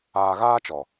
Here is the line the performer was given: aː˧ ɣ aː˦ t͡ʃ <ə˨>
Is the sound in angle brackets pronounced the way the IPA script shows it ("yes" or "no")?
no